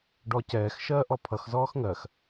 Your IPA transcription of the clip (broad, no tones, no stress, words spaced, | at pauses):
ɖɔcɛːx ʃɜːʔɔpʰʌx zɔːxŋɜx